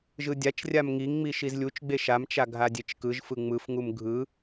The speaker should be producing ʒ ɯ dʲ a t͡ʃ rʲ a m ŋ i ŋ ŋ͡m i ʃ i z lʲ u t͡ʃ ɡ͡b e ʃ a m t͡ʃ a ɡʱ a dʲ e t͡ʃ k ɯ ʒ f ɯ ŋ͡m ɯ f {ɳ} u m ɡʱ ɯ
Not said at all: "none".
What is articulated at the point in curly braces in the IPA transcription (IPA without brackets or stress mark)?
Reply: ŋ